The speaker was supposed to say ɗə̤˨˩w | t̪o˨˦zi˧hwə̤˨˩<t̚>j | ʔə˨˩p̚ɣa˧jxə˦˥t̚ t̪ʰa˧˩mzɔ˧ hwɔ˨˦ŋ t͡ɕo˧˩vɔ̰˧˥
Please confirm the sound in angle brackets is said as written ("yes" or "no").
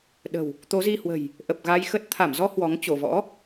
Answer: no